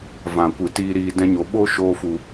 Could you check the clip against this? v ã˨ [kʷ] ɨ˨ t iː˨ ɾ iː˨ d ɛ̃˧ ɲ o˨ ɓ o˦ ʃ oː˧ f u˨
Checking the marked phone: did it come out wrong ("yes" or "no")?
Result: no